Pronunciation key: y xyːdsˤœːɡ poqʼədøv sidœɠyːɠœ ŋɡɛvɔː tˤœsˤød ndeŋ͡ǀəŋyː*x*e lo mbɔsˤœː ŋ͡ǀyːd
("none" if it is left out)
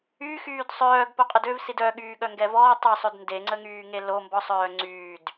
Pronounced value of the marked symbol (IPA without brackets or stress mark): ŋ